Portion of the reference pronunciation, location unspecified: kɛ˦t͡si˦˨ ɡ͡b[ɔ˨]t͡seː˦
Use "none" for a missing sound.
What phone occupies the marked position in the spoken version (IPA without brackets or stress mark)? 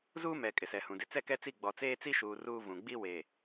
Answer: ɔ˨